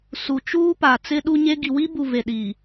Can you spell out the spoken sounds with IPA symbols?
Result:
s u˨ t͡ʃ uː˦ p a˨ t͡s ɪ˦ ɗ u˦ ɲ e˦ ɡ i˨ w i˦ b u˨ v e˨ ɗ i˨

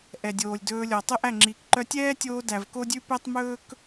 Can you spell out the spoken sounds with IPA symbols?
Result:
ʔ ɛ˨ dʲ oː˨ lʲ d ɵː˧ lʲ ɔ˨ tˤ ɵ˦ ʔ æ˦˨ ŋ͡ǁ iː˨ k ǃ œ˧ tʲ ɛː˦ tʲ oː˧ d æ˨ v k o˦ dʲ ʉ˦ p ɛ˦ tˤ m ɵː˦ k

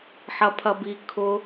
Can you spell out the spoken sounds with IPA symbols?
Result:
ħ ɐ pʰ ɐ b i kʰ ʊ

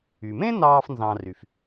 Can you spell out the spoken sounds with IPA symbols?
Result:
y˩ m ẽ˥ n ɑː˧ f n z ɑ̃˧ r y˩ f

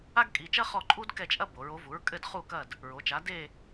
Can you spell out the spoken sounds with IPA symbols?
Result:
a˥ ɡ kʼ i˩˧˩ t͡ʃ ɐ˥ χ ɔ˦˨ ǃʼ u˥ d k ɛ˦˨ t͡ʃʼ ɐ˥ b o˩˧ ɹ o˩˥ v u˩˥ ɹ kʼ ɘ˦˨ d χ u˦˨ k ɐ˦˨ d | ɹ o˩˧ t͡ʃ a˩˥ d e˦˨

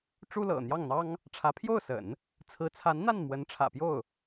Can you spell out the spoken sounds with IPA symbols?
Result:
ʈ͡ʂ u˥ l ɤ̰˨˩ n̪ j ɑ˥˩ ŋ n̪ ɑ˥ ŋ | ʈ͡ʂʰ ä˧˥ pʰ j o˥˩ ʊ̯ s ə̰˨˩˦ n | t͡sʰ ɹ̩˧˥ t͡sʰ a˧˥ n n̪ a˥˩ n m w ə˧˥ n ʈ͡ʂʰ ä̰˨˩ p j o˥˩ ʊ̯

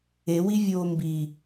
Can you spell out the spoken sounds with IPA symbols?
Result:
e w i vʲ oː m b i

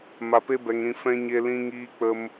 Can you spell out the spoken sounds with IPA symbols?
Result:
m a˧ p e˦ b ɛ˧ ŋ ɾ ĩ˧ f ɛ̃˦ ɲ e˦ l ĩ˦ ŋ iː˦ k͡p ə˦ m

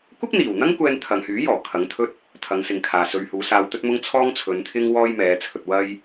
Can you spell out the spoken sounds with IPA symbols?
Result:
kʷ ɪ˥ k̚ n̪ iː˨˩ w n̪ ɐ˥ ŋ kʷ ɛː˧ n t̪ʰ ɐ˨ ŋ h yː˨˥ j ɔː˨˩ kʰ ɐ˨˥ ŋ t̪ʰ ɵ˥ t̚ | t̪ʰ ɐ˨˧ ŋ s ɪ˨ ŋ kʰ aː˨ s ɵ˨˧ ɥ h uː˨˥ s aː˧ w t̪ ɵ˥ t̚ m ʊ˥ ŋ t͡sʰ ɔː˥ ŋ t͡sʰ ɵ˨˧ n t̪ʰ ɪ˥ ŋ w ɔː˥ j m ɛː˨˧ t͡sʰ ɵ˨˥ t̚ w ɐ˥ j

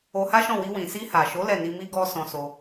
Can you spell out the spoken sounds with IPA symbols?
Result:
o˧ h a˦ ʃ ɔ̃˦˨ w i˧ w ĩ˨ s i˧ h a˨ ʃ o˨˦ l ɛ˦˨ n i˧ m i˦ ɡ ɔ˦ s ɔ̃˧ s o˧

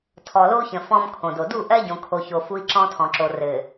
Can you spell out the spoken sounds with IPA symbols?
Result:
tʰ ɔ˨ l o˦ u̯ ç ə̃˨ f ɔ̃˦ m kʰ õ˨ d o˨ d u˦˨ ʔ ɜ˦ ɟ õ˨ kʰ o˨ ç o˨ f u˦ i̯ ǁ ɔ̃˦ tʰ ɔ̃˨ ǁ o˨ r ɘ˨

